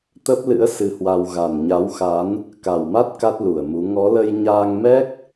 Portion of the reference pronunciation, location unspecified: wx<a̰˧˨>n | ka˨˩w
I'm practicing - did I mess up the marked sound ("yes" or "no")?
yes